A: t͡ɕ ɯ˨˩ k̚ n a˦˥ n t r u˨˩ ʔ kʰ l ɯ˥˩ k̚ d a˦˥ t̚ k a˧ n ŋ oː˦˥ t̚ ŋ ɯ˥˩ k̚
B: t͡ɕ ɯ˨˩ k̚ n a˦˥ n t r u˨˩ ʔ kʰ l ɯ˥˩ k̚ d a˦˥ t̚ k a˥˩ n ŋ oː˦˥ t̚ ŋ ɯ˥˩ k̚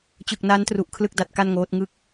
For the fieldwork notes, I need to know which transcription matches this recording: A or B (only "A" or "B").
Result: B